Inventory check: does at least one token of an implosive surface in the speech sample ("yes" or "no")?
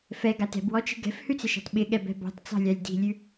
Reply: yes